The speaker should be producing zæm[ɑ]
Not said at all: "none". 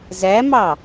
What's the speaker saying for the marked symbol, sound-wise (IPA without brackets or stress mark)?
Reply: ɑ